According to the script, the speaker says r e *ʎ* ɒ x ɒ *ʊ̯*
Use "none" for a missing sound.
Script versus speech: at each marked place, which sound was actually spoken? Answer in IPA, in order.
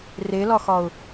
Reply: l, ʊ̯

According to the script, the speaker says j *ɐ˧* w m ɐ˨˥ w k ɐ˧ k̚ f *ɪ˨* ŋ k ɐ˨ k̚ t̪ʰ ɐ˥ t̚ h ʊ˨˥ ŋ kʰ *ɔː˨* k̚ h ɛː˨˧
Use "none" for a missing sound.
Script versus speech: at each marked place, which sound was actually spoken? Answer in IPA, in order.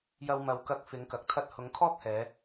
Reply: ɐ˧, ɪ˨˥, ɔː˥

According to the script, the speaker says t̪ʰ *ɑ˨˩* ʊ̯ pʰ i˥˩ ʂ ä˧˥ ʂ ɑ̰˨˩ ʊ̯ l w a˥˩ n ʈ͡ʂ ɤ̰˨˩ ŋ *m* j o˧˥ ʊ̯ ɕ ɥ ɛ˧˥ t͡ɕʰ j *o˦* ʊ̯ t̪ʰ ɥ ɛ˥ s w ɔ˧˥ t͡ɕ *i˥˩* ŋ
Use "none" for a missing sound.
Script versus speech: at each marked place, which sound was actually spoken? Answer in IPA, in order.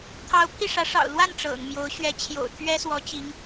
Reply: ɑ˧˥, m, o̰˨˩, i˧˥

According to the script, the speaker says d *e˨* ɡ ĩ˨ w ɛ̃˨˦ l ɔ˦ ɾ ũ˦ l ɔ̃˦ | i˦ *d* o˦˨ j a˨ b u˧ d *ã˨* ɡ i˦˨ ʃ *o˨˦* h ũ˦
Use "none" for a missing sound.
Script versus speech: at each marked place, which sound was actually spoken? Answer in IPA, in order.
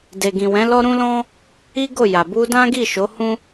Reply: e˨, ɡ, ã˦, o˨˦

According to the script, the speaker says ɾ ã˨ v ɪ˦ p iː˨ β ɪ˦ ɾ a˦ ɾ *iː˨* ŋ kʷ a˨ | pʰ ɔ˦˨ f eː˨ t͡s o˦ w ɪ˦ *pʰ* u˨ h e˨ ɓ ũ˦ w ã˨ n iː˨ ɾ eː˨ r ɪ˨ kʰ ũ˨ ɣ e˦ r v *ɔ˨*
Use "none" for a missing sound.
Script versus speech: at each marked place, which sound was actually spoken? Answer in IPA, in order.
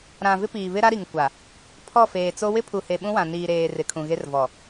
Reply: i˨, pʰ, ɔ˨

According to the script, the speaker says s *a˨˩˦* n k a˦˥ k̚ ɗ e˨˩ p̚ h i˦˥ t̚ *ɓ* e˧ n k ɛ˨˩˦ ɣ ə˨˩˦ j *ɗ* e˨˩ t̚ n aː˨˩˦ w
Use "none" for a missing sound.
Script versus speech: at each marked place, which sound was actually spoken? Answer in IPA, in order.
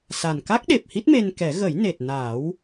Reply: a˨˩, m, n

